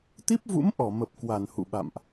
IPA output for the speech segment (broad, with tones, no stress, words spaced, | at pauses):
t̪i˦˥p̚vṵ˧˥mʔɔ˧˩mə˨˩p̚ kwa˧˩nhṵ˧˨ɓa̰˧˨mʔ